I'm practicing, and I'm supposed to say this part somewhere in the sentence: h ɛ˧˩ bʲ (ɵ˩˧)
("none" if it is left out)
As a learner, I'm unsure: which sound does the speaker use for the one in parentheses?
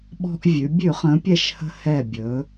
ɵ˩˧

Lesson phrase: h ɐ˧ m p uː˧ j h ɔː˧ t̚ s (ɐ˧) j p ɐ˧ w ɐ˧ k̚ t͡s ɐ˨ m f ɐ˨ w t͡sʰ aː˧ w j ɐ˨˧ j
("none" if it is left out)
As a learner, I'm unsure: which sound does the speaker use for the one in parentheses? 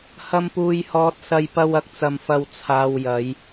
ɐ˧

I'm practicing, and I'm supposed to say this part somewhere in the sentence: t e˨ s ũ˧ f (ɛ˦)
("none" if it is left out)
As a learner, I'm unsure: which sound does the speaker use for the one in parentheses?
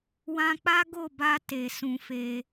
e˦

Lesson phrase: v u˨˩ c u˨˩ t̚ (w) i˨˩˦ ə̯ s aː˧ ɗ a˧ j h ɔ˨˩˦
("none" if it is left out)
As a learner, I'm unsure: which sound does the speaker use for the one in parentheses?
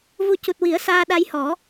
w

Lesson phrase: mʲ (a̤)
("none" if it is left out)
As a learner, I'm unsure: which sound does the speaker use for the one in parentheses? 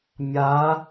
a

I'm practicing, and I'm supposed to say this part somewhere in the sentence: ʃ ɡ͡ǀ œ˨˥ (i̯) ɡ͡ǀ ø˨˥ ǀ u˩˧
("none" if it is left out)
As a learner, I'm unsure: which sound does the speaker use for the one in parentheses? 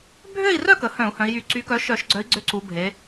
i̯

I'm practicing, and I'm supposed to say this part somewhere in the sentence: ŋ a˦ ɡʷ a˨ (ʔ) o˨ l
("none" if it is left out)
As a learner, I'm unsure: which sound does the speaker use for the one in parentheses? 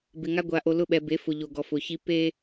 ʔ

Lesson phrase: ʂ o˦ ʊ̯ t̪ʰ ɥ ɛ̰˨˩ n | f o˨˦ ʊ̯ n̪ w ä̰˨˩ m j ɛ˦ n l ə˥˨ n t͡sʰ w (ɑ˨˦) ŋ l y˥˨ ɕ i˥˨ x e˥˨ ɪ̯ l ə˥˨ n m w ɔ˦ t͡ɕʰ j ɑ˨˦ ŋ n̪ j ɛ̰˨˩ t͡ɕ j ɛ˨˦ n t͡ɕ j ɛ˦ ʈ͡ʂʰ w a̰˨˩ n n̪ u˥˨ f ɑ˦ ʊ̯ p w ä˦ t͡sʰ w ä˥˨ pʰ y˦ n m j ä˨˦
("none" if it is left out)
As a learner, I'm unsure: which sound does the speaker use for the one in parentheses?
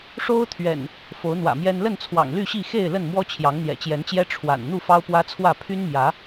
ɑ̰˨˩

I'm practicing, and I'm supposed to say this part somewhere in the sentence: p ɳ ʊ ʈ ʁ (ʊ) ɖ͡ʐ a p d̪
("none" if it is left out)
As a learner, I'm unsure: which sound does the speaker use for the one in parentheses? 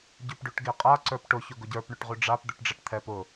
ʉ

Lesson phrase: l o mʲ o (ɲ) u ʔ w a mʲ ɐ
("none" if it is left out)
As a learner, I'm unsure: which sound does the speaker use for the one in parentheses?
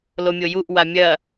j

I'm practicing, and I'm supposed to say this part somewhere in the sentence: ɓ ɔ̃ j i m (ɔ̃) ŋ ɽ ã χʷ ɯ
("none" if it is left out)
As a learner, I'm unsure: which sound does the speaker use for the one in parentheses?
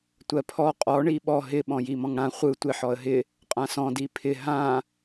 ɔ̃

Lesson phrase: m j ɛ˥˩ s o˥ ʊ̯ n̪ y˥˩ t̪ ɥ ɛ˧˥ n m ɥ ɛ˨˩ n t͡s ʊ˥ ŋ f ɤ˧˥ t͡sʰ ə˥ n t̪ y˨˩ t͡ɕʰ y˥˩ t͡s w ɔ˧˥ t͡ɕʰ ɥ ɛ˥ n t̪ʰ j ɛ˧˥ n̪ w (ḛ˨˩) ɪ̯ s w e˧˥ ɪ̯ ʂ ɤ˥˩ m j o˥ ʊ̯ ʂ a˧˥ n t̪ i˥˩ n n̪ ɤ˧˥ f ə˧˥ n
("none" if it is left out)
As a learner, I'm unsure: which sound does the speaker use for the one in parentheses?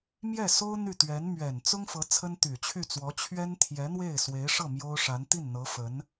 e˥˩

